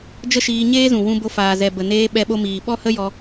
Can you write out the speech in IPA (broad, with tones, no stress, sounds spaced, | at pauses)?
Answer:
d͡ʒ ə˦ ʃ iː˧ ɲ eː˦ z ũ˨ w ũ˧ b o˧ f aː˨ z ɛ˨ b ə˨ n eː˧ ɓ ɛ˧ ɓ o˧ m iː˨ ɓ ɔ˦ h ə˦ j ɔ˧